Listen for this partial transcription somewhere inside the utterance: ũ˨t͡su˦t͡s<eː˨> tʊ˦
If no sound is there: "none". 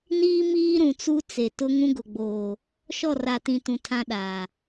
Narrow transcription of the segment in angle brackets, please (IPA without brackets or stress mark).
e˨